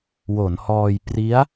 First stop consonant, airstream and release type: plain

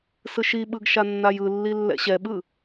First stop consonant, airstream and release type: implosive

